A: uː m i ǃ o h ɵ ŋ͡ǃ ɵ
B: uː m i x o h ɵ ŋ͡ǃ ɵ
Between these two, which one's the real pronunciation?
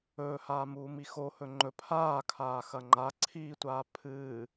B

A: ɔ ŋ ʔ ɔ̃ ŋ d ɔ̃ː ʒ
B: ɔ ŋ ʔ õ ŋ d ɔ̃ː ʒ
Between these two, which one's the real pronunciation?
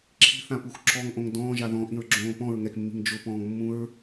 B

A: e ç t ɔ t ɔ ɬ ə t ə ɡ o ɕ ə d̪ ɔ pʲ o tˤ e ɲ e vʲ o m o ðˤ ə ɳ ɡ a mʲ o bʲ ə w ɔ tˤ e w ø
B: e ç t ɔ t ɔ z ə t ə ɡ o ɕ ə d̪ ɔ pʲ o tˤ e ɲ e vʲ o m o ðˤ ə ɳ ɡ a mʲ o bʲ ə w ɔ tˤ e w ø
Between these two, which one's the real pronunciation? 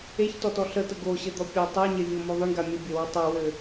A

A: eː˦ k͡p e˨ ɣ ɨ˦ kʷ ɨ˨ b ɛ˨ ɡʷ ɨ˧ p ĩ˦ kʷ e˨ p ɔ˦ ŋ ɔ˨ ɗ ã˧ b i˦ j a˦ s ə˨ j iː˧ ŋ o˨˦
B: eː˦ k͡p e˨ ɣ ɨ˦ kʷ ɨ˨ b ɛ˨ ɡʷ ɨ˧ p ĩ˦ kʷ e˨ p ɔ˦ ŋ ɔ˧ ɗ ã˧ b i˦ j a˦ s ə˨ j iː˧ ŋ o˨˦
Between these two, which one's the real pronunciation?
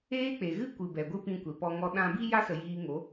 B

